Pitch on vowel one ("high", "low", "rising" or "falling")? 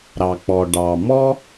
low